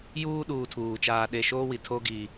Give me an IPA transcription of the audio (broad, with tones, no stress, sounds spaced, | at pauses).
j uː˦ ɗ uː˨ tʰ uː˨ t͡ʃ aː˦ ɗ e˦˨ ʃ oː˦ w i˨ tʰ o˦ ɡ i˦